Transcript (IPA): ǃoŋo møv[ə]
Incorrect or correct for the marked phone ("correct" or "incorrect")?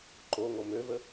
correct